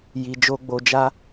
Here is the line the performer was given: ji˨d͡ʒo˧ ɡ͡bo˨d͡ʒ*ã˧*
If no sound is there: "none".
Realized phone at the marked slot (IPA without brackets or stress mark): a˧